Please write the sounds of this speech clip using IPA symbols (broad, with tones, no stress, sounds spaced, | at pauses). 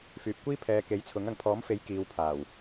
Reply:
f yː˨ p̚ kʷ iː˥ pʰ ɛː˨˧ k e˨˥ j t͡sʰ ʊ˨˥ ŋ ɐ˨ ŋ pʰ ɔː˨˥ m f e˨˥ j k iː˨˧ w pʰ aː˨˩ w